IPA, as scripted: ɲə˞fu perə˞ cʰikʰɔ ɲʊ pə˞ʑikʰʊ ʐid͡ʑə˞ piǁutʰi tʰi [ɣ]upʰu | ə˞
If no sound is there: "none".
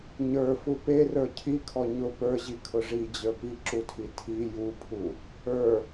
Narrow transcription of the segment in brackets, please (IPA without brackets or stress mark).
j